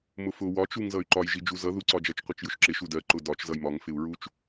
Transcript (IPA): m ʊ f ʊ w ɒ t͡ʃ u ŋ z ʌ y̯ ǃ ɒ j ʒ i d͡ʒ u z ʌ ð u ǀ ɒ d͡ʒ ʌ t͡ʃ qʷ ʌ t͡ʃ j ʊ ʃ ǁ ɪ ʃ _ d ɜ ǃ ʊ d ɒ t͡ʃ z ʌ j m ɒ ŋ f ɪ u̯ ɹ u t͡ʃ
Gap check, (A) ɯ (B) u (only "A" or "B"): B